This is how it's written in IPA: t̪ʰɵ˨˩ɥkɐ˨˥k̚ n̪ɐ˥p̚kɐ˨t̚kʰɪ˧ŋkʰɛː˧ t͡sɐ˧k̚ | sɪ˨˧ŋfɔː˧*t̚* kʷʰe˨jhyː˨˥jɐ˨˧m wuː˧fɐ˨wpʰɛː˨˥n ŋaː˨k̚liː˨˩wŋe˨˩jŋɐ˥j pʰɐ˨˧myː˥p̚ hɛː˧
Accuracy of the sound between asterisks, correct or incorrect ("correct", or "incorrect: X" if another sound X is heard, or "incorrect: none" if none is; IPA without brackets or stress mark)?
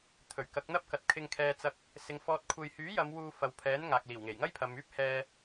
correct